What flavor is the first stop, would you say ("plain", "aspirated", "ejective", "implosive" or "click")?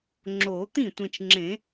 click